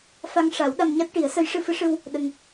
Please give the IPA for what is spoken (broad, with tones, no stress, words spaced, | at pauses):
fa˧ŋʂa˨˩˦w ɗa˧mɲa˦˥t̚ʈi˨˩˦ə̯sə˧˥j ʂɨ˧fɨ˧˥ʂɨ˧w | ɗə˧ŋ